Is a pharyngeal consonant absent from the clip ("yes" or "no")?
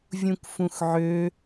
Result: no